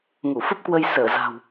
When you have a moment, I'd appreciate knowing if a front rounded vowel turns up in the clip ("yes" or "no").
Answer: no